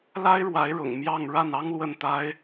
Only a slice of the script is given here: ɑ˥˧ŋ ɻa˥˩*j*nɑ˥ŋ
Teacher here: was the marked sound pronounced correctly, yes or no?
no